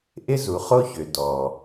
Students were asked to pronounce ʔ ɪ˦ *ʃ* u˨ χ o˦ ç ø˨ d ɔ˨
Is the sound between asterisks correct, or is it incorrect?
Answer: incorrect